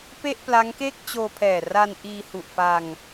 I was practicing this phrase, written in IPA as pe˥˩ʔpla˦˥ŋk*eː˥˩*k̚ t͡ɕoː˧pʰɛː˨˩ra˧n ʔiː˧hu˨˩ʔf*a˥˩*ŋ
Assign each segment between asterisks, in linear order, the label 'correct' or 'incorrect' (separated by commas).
correct, incorrect